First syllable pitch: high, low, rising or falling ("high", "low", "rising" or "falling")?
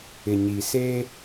low